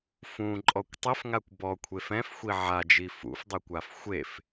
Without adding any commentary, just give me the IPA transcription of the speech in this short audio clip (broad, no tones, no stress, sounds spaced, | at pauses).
f ũ ǃʼ ɔ kʷ tˤ ɘ f ŋ a kʷ b ɔ kʷʰ e f ɛ̃ f xʷ i ʕ a d͡ʒ i f ṵ f dˤ e kʷ a f xʷ e f